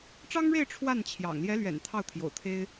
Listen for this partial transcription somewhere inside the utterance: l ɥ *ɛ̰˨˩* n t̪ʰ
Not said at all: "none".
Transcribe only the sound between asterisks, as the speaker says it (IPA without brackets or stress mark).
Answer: ɛ̰˨˩